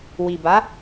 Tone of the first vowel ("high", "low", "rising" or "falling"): low